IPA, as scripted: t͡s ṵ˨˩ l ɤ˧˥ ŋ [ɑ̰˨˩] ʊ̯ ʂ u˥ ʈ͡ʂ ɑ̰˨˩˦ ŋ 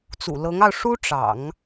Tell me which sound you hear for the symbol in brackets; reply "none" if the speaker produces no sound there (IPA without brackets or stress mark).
ɑ˧